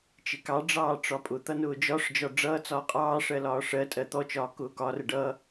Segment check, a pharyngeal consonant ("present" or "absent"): absent